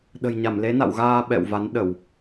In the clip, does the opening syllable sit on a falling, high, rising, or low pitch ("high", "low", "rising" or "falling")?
low